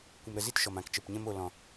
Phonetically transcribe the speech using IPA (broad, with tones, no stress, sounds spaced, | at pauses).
kʷ ə˧ m ɾ ə˧ z i˦ t ʃ ɔ˧ m ã˧ k t͡ʃ ə˧ p ɲ ɛ̃˦ m o˧ l ɔ̃˧